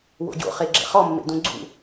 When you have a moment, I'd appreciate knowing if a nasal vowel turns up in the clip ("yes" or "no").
yes